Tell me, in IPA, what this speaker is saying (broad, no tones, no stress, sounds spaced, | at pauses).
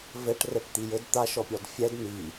v ɘ ʈ r ɛ ʈ t̪ i j ɘ d t̪ a ʃ ɔ pʲ ɔ d fʲ ɛ d n i